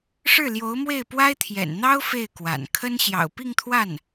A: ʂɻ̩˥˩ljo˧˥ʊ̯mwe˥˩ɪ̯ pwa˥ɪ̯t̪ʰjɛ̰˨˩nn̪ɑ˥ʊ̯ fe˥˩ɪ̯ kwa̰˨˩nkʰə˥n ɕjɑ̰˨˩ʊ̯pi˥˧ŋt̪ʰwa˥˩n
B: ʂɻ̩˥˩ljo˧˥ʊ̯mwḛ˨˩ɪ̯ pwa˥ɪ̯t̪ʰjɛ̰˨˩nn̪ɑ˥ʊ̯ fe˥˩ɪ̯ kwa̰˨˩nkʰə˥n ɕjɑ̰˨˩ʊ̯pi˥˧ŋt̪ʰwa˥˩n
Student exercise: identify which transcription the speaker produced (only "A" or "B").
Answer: A